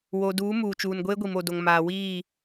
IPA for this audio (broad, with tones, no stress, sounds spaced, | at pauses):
w o˨ d uː˨˦ m uː˨ t͡ʃ uː˨ n ɡʷ eː˦ ɡʷ i˨ m o˨ d o˨ ŋ m aː˨ w iː˦˨